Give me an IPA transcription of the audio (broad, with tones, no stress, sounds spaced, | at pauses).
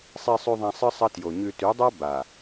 sˤ i˨ sˤ ʉ˨ ðˤ ã˨ sˤ ɨ˦ sˤ ɐ˦ t j o˨ ɲ ʉ˨ t ʉ˨˦ dˤ a˦ b a˨